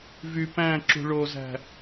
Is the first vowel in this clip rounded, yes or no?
yes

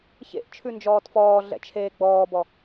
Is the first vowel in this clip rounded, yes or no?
no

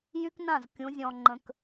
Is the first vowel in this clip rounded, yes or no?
yes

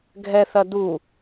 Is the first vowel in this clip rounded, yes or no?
no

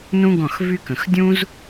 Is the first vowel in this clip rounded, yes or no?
yes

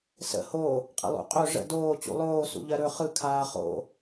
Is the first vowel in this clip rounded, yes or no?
no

